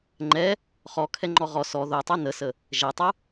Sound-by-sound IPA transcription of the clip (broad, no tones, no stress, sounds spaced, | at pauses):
ŋ͡ǃ ɛ | χ ɔ kʰ ɛ ŋ͡ǃ ɔ ʁ ɔ s ɔ ð o tˤ u n ə s ə | ʒ ɛ tˤ u